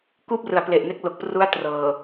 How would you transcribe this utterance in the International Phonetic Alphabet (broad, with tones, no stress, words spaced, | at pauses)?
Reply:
kuː˥˩p̚rɯ˩˦a̯ple˨˩ʔne˦˥k̚ lo˨˩k̚pru˦˥a̯ trɤː˨˩